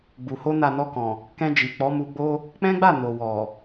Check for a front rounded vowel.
absent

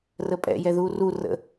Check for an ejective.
present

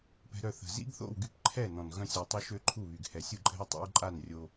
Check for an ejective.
present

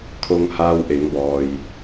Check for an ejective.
absent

